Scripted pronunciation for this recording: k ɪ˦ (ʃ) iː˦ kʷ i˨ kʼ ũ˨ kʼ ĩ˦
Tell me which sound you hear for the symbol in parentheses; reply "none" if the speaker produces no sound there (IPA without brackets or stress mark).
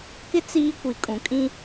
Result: t͡s